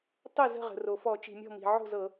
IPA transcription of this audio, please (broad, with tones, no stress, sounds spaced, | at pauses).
tˤ ə˥˩ z ə̤˥˩ ʁ ə̤˩ r o˩ f ɔ˧˩˧ t͡ʃ i̤˩ mʲ ɔ̤˥˩ m i̤˩ ʕ o̤˥˩ z ɤ˧˩˧